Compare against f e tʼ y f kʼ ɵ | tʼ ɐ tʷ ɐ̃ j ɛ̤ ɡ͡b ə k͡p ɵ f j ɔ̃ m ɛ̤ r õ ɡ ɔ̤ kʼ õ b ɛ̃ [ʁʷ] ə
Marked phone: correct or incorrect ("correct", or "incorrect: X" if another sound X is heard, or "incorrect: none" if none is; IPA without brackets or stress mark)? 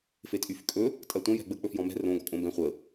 incorrect: χʷ